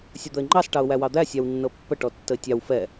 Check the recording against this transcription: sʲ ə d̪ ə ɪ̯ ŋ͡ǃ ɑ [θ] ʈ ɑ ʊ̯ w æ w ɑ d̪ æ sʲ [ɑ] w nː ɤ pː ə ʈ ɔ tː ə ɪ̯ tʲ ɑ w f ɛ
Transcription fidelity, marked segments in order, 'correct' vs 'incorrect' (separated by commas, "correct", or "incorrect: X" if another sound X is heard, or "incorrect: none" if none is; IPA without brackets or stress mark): incorrect: s, correct